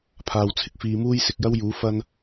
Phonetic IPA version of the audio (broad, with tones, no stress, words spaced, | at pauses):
pʰaː˨wt͡sʰɪ˧k̚ fiː˧muː˥jsɪ˧k̚ jɐ˥wjuː˨˥ fɐ˧n